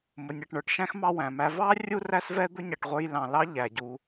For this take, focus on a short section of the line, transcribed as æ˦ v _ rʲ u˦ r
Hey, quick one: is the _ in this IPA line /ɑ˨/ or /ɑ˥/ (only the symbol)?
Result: ɑ˥